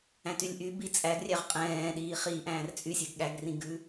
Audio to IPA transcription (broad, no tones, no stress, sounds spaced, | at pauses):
æ̃ t y lʲ ʔ y b i t͡sʼ æ ɡ rʲ æ ʁ qʼ ɛ̃ː ɗ iː χ iː ʔ æ̃ː r t͡sʼ y sʲ ɛ ɡ ɠ æ ɡ r ĩ ɡ ʉ